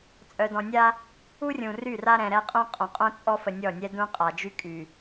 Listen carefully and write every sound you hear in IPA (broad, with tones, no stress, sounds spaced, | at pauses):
t͡sʼ œ˨ d ɔ̃˨ nʲ a˦ | u˦ rʲ ũ˨ r y˦˨ r a˦ ɾ ɛ̃˨ ɾ ɛ˦ qʼ ũ˦ qʼ õ˨ qʼ õ˦ t͡sʼ ɔ˦ f ə˨ nʲ ɔ˦˨ nʲ ɛ˦ d ũ˦ qʼ a˨ d͡ʒ y˦ kʼ y˨